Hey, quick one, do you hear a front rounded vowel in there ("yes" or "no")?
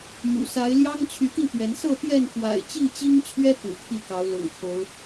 yes